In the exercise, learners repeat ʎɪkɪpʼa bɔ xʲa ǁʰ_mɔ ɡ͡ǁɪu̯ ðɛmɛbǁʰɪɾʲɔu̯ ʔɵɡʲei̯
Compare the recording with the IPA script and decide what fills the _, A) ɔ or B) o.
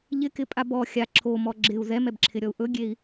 B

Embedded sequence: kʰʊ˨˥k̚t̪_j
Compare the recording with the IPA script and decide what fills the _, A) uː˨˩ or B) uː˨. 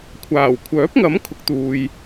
B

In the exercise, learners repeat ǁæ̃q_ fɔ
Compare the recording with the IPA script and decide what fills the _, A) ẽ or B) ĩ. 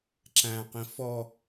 B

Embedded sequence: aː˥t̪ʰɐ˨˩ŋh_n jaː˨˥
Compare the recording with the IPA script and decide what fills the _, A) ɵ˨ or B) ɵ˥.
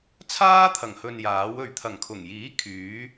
A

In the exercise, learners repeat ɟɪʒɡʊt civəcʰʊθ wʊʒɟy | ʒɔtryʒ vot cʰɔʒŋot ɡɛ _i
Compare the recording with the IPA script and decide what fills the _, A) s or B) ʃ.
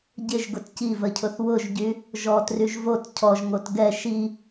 B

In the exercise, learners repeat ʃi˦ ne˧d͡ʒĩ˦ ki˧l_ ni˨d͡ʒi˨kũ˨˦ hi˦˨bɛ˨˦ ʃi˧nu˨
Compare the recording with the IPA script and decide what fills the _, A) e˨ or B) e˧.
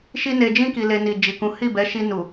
B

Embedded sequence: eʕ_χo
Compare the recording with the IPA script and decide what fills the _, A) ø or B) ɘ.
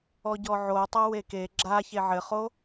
B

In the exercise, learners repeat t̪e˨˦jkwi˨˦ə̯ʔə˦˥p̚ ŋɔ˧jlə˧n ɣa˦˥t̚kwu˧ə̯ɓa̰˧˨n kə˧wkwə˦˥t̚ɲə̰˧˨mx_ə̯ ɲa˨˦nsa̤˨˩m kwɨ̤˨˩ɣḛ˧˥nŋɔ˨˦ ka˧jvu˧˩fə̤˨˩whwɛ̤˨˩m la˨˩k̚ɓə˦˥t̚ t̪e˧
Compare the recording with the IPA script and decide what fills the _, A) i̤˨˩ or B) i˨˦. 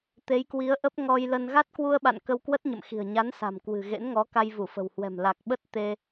A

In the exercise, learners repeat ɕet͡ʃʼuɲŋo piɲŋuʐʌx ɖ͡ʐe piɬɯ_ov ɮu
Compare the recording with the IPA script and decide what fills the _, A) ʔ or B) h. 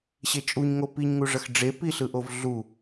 A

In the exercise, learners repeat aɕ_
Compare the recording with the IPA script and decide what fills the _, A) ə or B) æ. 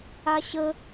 A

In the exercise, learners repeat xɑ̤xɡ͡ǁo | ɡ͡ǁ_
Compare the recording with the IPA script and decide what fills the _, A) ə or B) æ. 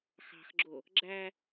B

